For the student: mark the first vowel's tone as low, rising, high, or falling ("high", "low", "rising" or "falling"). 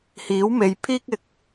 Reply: rising